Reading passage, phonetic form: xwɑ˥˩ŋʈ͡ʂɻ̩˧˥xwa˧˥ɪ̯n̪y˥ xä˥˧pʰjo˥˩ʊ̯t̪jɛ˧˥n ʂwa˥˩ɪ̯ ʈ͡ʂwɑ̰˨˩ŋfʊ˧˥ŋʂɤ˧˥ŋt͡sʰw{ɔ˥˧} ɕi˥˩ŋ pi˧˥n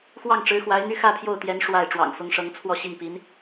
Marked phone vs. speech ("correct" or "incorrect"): correct